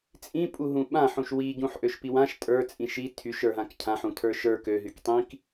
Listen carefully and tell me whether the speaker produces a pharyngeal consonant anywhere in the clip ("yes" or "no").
yes